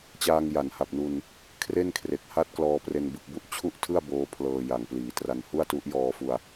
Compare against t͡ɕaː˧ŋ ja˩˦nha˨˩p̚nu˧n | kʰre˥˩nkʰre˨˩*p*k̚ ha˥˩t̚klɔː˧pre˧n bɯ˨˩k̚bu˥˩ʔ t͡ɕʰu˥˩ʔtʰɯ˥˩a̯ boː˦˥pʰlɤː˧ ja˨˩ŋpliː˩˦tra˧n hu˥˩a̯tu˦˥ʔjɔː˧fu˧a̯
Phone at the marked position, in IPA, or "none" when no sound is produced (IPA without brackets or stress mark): none